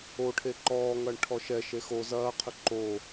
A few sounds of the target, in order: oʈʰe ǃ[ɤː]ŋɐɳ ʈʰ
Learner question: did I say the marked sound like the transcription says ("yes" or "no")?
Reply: no